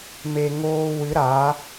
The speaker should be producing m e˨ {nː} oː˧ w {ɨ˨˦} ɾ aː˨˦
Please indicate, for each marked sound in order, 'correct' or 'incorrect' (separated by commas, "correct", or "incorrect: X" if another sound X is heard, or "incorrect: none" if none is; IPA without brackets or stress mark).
incorrect: ŋ, correct